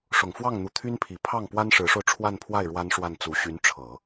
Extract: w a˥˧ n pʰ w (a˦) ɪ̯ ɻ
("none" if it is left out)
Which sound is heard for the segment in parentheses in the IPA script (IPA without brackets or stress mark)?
a˥˩